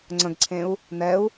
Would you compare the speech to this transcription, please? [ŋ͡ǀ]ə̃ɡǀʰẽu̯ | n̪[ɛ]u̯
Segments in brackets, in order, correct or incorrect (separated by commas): correct, correct